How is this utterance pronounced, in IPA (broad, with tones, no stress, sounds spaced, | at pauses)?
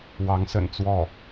w ɑ˧˥ ŋ s ə̰˨˩ n t͡s w ɔ˥˩